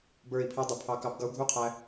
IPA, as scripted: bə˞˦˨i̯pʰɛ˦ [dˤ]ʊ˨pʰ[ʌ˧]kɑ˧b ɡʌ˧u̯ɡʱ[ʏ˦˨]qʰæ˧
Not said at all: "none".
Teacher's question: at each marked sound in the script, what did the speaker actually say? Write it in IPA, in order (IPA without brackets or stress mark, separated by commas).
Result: dˤ, ɑ˧, u˦˨